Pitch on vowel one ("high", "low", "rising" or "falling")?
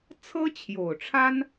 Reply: high